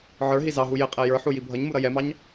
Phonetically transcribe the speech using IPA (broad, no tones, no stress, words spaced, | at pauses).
ʕə˞ɦi zɑɦu jɪqʼɛ jə˞ħu jibʱʌɲmu ɾʌjɛmɑɲ